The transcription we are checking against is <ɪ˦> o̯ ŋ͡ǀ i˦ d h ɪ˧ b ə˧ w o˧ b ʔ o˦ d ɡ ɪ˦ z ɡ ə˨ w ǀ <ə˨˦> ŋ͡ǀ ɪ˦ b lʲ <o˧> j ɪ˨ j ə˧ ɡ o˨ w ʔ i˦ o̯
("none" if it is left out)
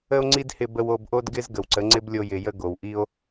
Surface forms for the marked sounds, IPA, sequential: ə˦, ə˨˦, o˧

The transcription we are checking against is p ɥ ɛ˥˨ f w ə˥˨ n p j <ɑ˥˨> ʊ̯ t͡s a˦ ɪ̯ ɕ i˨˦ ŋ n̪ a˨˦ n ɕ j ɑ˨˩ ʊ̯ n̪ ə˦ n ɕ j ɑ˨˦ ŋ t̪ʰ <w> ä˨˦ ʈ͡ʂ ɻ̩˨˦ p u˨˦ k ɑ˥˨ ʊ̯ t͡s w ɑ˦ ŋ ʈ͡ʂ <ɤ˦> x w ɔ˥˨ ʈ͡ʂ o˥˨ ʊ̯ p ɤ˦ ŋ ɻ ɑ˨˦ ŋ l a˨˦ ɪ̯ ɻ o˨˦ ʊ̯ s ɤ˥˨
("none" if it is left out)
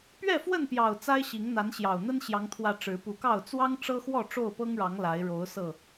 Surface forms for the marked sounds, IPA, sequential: ɑ˨˩, w, ɤ˦

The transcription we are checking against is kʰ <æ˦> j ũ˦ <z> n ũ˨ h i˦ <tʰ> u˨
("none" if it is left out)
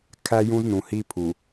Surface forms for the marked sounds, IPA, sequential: æ˦, z, pʰ

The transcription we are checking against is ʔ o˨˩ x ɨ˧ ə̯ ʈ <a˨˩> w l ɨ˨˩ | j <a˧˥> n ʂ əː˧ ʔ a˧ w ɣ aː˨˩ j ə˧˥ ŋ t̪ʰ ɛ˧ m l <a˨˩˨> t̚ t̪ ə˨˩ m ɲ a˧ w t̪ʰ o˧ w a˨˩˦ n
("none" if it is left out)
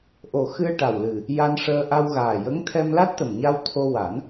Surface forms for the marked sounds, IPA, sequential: a˨˩, a˧, a˦˥

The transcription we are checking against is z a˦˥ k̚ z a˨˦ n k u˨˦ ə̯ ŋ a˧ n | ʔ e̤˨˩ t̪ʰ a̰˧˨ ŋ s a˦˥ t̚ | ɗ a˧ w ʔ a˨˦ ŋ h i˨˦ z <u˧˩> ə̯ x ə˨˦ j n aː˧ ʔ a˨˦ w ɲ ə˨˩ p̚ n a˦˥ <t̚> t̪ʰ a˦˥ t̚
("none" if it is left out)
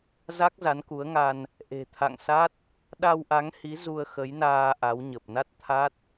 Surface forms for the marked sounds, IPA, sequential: u˧, t̚

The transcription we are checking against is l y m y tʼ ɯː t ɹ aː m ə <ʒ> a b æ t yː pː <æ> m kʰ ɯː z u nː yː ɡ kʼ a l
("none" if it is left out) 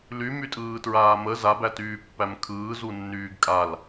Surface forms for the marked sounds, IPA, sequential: z, æ

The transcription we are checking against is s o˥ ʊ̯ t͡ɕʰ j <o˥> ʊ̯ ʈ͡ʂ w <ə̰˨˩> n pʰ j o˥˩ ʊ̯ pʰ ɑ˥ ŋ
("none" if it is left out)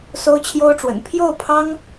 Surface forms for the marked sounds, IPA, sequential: o˥, ə̰˨˩

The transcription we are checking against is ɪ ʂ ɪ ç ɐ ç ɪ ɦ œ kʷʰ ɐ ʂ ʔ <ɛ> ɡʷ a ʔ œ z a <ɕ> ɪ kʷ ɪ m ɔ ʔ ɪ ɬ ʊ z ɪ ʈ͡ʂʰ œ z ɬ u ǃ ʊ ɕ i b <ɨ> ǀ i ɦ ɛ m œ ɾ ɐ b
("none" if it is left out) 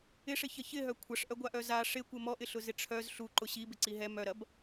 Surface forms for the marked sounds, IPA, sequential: œ, ʂ, ɪ

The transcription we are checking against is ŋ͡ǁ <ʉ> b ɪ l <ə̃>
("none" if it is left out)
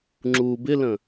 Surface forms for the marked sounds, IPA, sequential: u, ə̃

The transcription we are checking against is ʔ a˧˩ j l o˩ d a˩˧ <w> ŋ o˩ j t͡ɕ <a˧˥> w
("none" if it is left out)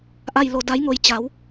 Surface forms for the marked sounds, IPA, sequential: j, a˩˧

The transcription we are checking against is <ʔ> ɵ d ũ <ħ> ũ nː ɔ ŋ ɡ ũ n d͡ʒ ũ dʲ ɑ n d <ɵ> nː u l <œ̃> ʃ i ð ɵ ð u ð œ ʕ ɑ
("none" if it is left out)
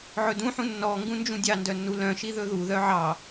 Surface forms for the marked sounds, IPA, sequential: ʕ, ħ, œ, œ̃

